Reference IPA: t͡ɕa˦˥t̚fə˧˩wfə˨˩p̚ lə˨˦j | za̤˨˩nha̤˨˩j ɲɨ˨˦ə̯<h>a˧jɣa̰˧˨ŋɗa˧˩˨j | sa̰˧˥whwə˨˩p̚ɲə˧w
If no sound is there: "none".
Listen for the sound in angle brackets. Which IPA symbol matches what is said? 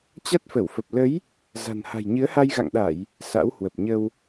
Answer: h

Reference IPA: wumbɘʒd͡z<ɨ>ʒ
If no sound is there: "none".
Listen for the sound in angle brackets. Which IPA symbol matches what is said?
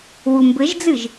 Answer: ɨ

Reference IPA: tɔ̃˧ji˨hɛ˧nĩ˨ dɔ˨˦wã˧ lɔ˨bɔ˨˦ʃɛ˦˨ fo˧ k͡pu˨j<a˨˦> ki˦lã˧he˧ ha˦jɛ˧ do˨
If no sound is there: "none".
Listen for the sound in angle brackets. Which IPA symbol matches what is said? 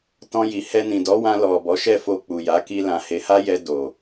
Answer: a˨˦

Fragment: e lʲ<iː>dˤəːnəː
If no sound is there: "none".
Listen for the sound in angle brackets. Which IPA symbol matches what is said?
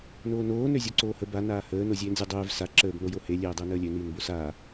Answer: eː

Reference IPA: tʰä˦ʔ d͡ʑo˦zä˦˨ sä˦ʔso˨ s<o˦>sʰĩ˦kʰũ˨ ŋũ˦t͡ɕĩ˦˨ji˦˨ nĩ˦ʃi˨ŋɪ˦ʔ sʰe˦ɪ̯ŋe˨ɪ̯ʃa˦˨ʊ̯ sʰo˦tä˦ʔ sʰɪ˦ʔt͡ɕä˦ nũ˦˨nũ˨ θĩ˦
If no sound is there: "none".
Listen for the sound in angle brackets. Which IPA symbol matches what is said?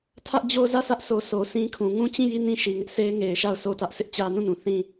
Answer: o˨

